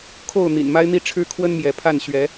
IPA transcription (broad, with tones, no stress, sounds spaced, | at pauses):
kʰ o˥˨ ʊ̯ n̪ ḭ˨˩ n m a˦ ɪ̯ n̪ i˥˨ ʈ͡ʂʰ ɻ̩˦ kʰ w ə˦ n m j ɛ˨˦ pʰ a˥˨ n ɕ ɥ ɛ˨˦